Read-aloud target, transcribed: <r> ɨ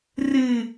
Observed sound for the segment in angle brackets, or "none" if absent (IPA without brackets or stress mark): r